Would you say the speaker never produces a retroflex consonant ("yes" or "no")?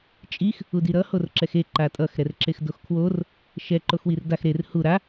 yes